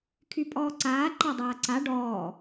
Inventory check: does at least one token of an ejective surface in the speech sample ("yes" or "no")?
yes